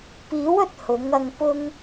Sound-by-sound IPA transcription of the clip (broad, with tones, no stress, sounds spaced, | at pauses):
p iː˨˥ w ɵ˨ t̚ h ʊ˨˥ ŋ ɐ˧ ŋ p ʊ˥ ŋ